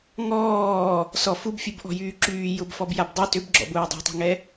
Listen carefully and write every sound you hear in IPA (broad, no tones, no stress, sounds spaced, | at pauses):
ŋ ɔː | s ɔ f u b fʲ u b ʔ ɔ̤ j yː ǁ yː j ʊ b f ɔ b j a b dˤ y t ʏ b ɡ͡ǁ ɔ̰ b ʊː dˤ e̤ tˤ i̤ ŋ ɛ